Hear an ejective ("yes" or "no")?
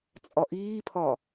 yes